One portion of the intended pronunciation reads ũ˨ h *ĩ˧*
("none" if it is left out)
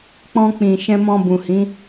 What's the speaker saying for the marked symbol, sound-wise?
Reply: ĩ˨˦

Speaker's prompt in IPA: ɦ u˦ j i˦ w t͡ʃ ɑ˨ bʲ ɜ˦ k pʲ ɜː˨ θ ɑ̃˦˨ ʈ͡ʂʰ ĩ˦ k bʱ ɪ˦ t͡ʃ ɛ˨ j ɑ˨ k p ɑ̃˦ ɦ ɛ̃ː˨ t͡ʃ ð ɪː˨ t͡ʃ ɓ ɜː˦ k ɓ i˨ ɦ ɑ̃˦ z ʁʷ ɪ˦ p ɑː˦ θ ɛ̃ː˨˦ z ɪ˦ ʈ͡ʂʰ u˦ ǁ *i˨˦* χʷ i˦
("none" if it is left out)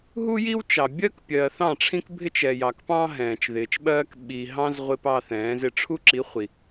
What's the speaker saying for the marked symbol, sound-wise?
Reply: i˨˦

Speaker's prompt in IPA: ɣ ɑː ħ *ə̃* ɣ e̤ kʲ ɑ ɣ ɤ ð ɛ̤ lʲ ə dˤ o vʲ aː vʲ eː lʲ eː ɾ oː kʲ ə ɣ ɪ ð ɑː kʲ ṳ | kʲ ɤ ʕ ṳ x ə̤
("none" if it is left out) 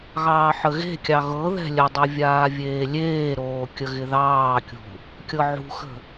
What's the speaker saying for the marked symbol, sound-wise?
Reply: ə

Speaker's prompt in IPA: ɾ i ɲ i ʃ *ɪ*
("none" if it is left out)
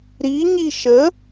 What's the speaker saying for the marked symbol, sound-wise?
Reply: ə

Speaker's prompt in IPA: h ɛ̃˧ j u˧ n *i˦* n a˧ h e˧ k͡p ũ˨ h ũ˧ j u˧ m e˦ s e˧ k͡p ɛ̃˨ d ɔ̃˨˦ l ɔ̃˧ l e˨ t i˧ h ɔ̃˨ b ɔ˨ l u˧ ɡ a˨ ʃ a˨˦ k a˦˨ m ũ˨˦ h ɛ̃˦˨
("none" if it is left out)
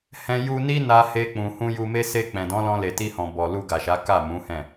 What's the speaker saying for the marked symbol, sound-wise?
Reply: i˦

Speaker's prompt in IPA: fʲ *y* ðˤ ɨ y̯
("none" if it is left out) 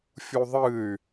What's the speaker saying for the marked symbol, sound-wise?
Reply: u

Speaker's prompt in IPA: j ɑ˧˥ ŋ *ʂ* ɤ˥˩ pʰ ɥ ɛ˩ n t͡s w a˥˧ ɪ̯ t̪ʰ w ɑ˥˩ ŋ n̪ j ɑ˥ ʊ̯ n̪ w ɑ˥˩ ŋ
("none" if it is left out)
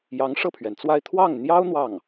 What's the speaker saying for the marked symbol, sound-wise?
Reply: ʂ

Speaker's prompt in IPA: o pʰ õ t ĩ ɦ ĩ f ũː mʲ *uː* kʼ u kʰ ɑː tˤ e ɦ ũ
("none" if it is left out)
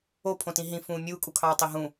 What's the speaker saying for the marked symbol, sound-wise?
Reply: uː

